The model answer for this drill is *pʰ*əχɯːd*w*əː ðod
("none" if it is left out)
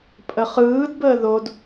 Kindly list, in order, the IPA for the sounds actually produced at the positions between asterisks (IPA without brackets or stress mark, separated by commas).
pʼ, b